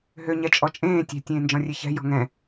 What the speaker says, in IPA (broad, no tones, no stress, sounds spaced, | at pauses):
ɦ ø ɲ ɛ t͡ʃʼ ɔ t͡ʃʼ ẽː tʲ ɛ̤ tʲ ẽː n d͡ʒ ɔ̃ rʲ e ç ɛ̤ j ɔ̤ ŋ ɛ̃